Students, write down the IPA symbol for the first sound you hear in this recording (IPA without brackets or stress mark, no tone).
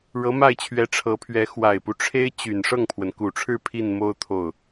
ɻ